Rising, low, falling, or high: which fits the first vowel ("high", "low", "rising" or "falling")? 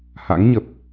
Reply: rising